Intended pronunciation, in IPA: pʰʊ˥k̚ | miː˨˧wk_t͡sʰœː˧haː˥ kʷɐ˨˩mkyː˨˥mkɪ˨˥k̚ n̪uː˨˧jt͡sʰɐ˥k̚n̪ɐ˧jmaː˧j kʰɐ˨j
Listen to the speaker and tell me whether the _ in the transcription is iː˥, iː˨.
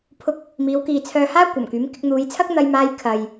iː˨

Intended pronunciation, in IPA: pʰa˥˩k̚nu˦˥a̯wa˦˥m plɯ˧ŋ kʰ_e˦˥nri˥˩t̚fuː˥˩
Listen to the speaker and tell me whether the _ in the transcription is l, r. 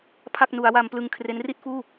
r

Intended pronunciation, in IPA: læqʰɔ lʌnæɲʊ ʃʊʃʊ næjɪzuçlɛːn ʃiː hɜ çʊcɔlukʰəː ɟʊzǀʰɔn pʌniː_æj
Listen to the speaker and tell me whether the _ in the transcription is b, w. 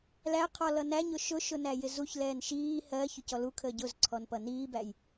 b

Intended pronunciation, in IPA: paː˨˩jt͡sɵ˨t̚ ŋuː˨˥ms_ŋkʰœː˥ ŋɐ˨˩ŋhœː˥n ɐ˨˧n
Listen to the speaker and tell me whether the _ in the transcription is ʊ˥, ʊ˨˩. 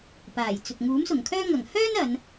ʊ˨˩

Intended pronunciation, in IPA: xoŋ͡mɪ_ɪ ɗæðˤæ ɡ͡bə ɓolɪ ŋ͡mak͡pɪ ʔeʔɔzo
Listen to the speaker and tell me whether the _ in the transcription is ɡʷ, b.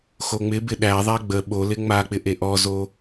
b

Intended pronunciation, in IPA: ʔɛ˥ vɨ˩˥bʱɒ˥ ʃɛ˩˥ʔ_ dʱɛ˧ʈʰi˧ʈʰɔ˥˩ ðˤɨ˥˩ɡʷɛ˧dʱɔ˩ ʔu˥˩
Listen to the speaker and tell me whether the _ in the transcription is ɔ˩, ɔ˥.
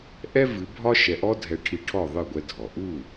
ɔ˥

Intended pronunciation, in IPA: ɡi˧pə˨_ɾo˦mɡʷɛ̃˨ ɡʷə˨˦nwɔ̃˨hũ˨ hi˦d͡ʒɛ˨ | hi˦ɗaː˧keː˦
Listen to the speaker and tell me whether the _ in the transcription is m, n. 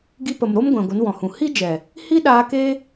m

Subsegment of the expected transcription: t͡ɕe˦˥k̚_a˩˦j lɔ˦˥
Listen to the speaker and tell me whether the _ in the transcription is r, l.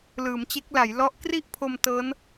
l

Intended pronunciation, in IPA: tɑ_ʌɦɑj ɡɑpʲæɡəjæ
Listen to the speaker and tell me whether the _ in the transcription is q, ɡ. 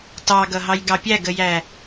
ɡ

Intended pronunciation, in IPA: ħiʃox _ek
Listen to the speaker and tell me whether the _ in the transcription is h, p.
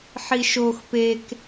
p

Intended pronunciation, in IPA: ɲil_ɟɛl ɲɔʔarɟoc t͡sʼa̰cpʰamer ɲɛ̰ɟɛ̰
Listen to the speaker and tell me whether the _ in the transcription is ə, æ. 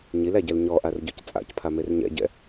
æ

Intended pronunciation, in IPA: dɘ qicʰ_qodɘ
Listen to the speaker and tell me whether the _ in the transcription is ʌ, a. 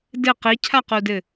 a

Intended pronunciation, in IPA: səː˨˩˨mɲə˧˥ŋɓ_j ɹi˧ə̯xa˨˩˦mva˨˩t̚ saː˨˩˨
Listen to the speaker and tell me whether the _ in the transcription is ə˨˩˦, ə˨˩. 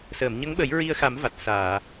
ə˨˩˦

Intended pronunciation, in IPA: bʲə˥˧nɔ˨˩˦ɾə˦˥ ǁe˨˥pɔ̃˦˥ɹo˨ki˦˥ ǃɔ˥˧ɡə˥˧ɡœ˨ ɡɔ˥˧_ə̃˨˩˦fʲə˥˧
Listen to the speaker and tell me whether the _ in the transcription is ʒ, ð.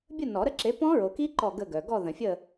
ð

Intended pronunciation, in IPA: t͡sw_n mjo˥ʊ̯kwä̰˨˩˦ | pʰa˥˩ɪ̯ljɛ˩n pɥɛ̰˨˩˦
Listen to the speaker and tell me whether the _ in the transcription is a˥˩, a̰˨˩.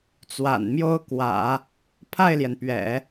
a̰˨˩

